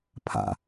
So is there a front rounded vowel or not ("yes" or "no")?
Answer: no